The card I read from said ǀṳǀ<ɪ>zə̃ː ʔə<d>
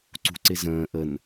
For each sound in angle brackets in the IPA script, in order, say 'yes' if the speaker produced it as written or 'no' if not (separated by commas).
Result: yes, no